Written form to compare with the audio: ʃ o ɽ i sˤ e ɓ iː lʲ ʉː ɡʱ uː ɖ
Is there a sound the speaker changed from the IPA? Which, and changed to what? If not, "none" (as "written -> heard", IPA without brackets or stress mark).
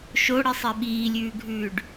uː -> ʉː